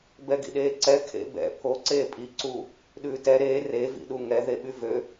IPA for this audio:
bɛɡḭɗeːǀɛ kʰḛbɛ̰ pʰo ǀeːpʼi ǀu | ɗʉːtɛ ɾeː re vḭɗuŋɛ ðeɓyvø

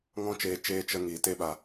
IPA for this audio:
ŋɔ̃˦t͡ʃeː˧ t͡ʃeː˦ t͡ʃə˦ŋiː˧ te˦ɓa˧

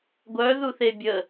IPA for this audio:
ɡʷœ ðuθebʲə

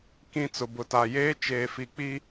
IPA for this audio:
kĩ˨ t͡sʊ˨bʊ˨ta˨jeː˦ t͡ʃeː˨fi˨k͡pi˦

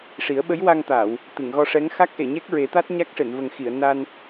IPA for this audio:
ʂi˨˩˦ə̯ɓə˧˥jwa˧ŋt̪aː˨˩˨w | t̪ɨ˨˩˨ŋɣɔ˧ʂɛ˧˥ŋ xa˦˥k̚ʔe˨˩˨ɲɛ˦˥k̚ ɹe˨˩˦t̪a˦˥t̚ ɲa˦˥k̚ʂe˨˩˨nvə˨˩ŋxi˨˩˨ə̯ na˧n

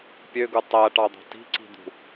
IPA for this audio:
pʲøɡu tˤæʈɑd̪ɑ̤ ti̤ǀi̤d̪ṳ

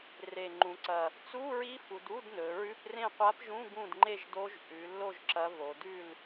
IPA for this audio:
re˨˩ŋ͡ǃũ˩˧ǀɐ˨˩ | t͡su˧˥˧ɹi˧˥fu˩˧d u˧˥˧dnɵ˩˧ɹʉ˧˥˧prẽ˥˨ qʷa˧˥pʒũ˧˥˧ ɡũ˥˨d ŋ͡ǃe˥˨ʒdo˧˥ʒ ʔʉ˩˧lːo˥˨ʒ ǁɐ˧˥v o˩˧dʉ˥˨l

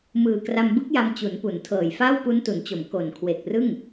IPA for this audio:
mɯː˨˩ kra˧mbɯ˦˥k̚ja˧m t͡ɕu˩˦npu˩˦ntʰɤː˨˩j faː˥˩wpu˦˥ntu˩˦nt͡ɕo˩˦m ko˨˩n kʰwe˨˩k̚rɯ˥˩ŋ

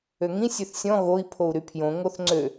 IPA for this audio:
øŋĩ sʲøθsʲɔ̃ ɣoi̯ pʰou̯ɾypʰjõ ŋoθŋ͡ǀø

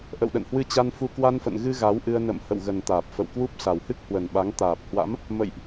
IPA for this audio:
ʔə̰˧˨wɗə̰˧˨nhwɨ˧t͡ɕa˧n fu˧ kwa˧nfə̰˧˨nɣɨ˧ ɣa˨˦wʔɨ˧ə̯ nə̰˧˨m hə̰˧˨wɣə˨˩nt̪aː˨˩p̚ fə̰˧˨wkwu˦˥p̚ sa˨˩whɨ˦˥k̚hwə˨˩nɓa˨˦ŋ t̪aː˨˩p̚hwa̰˧˥m | mə̰˧˨jʔ

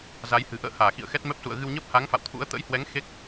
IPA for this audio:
za˨˦jhɨ̤˨˩ ʔə̰ː˧˨haː˧˩ xḭ˧˨ə̯xɛ˦˥t̚mɛ˦˥p̚sṵ˧˨ə̯ ɣɨ˧wɲəː˦˥p̚ha˨˦ŋ fa̰˧˨wt̪ʰṵ˧˥ə̯ t̪ə̰˧˥jhwɛ˨˦ŋ xe˦˥k̚

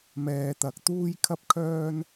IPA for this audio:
mɛː˨t̪ɐ˨k̚ t̪uː˥jkʰɐ˥p̚kʰœː˥n

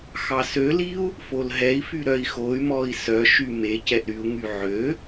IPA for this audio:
xɑsøliu̯ | folɦɛi̯fy ɾœi̯xoy̯mɔi̯ sœʃy me cɛʔɾyu̯ŋy ʕø

